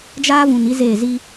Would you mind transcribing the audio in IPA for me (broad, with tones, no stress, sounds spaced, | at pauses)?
d͡ʒ aː˦ v ũ˨ n i˦ z eː˦˨ z i˦